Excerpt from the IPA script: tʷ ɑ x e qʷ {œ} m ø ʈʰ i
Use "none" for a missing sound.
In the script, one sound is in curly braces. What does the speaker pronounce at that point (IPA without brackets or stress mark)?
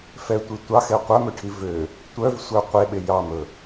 œ